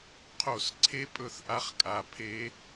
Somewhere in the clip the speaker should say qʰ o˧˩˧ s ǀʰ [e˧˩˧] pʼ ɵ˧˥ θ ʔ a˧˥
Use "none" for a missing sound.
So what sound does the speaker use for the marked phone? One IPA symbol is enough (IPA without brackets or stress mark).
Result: e˧˥